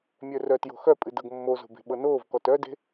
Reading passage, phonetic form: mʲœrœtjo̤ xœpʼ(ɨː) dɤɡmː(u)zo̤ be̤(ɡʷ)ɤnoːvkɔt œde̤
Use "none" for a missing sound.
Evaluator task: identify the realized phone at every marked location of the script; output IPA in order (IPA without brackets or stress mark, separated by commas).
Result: ɨ, o, ɓ